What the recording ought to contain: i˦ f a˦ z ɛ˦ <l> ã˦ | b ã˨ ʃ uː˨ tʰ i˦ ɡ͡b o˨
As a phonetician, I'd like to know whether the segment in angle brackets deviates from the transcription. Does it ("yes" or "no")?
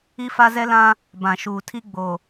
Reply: no